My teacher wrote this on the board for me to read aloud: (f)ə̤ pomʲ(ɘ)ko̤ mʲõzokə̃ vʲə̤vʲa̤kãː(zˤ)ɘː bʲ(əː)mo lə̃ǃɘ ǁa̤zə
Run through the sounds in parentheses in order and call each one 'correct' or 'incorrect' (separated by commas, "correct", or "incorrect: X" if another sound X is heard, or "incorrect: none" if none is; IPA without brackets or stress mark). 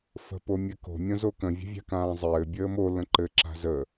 correct, correct, correct, correct